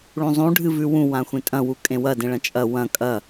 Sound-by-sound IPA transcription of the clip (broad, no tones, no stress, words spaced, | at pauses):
ɭũzˤũ ɖʱɨvʉwũ wãxʷẽtʼɐ̃ wukʼẽwɐ dẽɭɐ̃t͡ʃʼɐ wɐ̃ kʼɐ